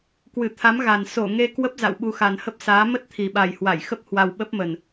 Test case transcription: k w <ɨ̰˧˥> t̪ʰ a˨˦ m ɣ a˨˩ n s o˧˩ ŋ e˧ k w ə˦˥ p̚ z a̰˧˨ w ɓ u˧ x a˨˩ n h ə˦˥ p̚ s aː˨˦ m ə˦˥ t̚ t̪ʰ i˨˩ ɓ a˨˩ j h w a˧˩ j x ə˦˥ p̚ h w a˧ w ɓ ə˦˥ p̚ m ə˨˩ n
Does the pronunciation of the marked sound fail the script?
yes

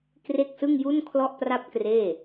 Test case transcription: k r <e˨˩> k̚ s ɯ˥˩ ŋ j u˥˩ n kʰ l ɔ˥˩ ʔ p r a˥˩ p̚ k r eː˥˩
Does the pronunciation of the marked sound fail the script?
yes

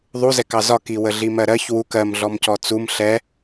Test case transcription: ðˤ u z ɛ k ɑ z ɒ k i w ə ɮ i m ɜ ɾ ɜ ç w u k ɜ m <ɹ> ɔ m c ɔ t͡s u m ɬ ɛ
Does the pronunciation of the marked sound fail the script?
yes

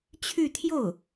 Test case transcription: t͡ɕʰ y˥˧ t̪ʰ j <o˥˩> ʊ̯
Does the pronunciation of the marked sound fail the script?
no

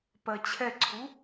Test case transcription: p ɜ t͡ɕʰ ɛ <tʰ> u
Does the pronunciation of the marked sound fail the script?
yes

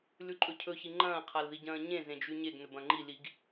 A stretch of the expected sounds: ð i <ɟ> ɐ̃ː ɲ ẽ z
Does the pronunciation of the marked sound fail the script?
no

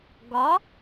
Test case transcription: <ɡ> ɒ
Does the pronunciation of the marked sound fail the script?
no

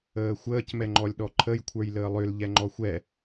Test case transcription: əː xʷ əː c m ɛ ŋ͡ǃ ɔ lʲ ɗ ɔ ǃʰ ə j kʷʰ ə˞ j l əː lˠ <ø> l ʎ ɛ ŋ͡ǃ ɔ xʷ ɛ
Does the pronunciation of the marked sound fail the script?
no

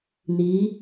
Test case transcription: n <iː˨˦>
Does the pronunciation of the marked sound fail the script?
no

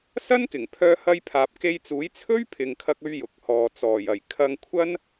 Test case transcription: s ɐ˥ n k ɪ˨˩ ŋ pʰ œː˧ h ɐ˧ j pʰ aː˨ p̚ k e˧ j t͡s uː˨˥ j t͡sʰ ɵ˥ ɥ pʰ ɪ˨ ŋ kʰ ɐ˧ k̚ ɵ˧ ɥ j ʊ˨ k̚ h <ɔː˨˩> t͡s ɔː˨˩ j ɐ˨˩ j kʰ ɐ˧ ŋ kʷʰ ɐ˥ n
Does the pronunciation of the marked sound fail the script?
yes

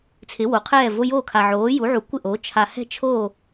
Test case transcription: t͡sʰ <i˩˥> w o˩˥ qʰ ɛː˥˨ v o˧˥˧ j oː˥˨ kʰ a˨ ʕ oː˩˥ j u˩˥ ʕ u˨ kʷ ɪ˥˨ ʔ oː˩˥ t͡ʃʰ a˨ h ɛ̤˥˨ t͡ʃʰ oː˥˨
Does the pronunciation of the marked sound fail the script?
yes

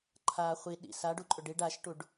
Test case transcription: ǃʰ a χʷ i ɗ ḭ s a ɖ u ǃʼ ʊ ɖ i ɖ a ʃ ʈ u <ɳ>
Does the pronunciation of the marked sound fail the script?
yes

